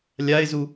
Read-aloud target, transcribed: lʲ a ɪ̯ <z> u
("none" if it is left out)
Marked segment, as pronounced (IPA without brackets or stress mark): z